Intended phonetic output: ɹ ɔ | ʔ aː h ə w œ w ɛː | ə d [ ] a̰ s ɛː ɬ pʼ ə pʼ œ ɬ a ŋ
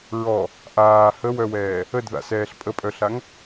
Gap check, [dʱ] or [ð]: ð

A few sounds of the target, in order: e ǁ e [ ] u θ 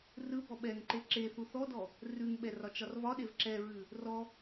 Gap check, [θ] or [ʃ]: θ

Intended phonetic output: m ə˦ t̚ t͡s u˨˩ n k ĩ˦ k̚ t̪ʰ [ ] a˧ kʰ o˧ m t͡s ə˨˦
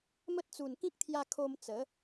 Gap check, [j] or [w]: j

